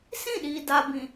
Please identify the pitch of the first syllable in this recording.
falling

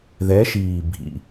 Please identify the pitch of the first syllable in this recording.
rising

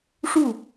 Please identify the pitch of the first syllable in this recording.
falling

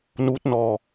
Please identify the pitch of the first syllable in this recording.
rising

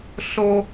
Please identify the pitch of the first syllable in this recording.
high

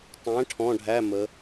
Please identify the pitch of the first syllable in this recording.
rising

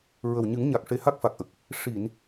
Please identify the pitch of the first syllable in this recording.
low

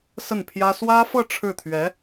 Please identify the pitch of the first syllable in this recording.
falling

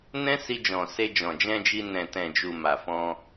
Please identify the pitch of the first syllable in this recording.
high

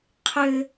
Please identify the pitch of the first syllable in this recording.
high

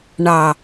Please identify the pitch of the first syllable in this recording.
low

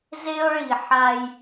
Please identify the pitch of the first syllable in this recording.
high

